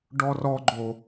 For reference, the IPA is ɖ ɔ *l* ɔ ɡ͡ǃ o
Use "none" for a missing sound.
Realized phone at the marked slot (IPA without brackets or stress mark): r